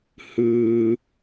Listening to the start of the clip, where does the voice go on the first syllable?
low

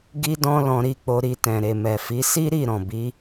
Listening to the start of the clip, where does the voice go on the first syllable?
high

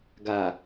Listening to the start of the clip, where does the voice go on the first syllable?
low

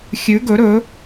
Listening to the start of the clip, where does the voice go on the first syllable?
rising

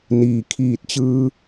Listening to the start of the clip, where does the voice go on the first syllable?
low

